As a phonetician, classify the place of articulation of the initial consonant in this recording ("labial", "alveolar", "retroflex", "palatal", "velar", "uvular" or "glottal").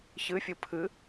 palatal